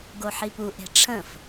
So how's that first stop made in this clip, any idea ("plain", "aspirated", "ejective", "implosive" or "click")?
plain